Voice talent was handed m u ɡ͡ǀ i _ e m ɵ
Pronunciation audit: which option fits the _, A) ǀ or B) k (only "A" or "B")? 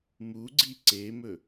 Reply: A